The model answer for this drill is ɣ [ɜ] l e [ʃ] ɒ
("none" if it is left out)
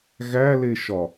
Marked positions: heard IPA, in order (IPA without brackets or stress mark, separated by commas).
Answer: æ, ʃ